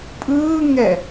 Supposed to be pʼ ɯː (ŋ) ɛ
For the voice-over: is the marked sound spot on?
yes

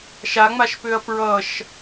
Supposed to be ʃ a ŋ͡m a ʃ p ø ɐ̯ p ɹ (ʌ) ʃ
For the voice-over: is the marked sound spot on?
yes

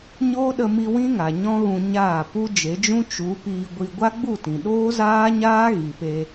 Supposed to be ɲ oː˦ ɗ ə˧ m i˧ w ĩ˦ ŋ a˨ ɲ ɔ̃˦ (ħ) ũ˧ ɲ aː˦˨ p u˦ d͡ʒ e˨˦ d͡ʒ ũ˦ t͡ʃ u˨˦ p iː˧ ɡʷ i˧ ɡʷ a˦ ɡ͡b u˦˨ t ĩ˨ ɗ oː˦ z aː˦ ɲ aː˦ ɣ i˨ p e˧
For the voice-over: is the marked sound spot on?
no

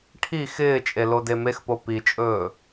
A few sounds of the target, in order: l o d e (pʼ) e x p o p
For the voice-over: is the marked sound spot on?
no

